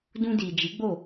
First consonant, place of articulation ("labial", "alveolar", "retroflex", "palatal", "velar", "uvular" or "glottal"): alveolar